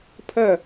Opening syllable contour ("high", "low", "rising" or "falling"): falling